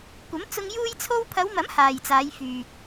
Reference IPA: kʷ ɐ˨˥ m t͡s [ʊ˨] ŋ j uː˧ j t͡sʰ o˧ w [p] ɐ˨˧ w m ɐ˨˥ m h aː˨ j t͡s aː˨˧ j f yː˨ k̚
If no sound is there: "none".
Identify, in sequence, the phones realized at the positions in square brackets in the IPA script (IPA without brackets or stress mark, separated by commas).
ʊ˧, pʰ